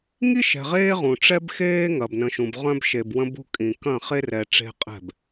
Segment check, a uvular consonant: present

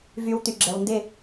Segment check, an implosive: absent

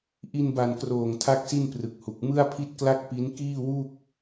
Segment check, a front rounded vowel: absent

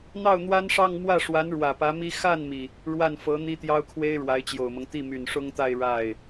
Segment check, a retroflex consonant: present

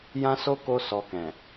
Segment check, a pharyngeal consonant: absent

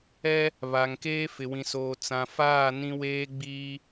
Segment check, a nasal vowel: present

